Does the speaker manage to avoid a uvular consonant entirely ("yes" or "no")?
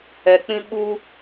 yes